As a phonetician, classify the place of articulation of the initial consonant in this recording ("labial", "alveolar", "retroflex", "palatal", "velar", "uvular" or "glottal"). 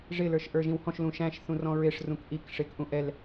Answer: retroflex